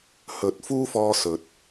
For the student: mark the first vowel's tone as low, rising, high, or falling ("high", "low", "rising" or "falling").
rising